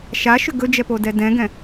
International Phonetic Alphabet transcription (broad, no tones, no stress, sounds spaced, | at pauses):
ʃ a ʃ ʏ ɡ ɵ d͡ʒ ɛ p o d ɛ d ɛ̃ ɡ ɛ̃